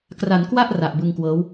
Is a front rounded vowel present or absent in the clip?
absent